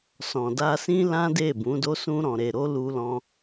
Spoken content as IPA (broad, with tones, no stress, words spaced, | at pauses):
sɔ̃˨da˧sĩ˦ lã˦de˦˨bũ˨˦do˦ sũ˧ɾɔ̃˨ɾe˨ɾo˧ lu˧lɔ̃˧